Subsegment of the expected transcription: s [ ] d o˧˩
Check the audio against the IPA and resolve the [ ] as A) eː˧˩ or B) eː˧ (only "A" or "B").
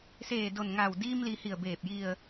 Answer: A